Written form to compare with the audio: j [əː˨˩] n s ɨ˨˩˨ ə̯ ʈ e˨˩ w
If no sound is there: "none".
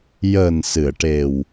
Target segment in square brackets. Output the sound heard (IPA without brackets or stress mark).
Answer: əː˨˩